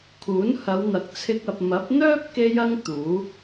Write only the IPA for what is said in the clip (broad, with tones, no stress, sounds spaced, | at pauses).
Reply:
kʰ uː˨˥ n h ɐ˨˧ w n̪ ɐ˨ k̚ t͡sʰ ɪ˧ k̚ ɐ˨ p̚ m ɐ˨˥ p̚ n̪ œː˥ p̚ k e˧ j ɐ˧ ŋ t̪ uː˨˥